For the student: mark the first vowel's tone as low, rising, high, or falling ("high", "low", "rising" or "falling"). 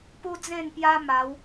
high